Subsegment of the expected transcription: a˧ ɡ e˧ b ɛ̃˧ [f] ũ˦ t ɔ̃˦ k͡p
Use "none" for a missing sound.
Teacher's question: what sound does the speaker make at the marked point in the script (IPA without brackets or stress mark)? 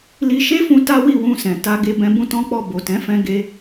b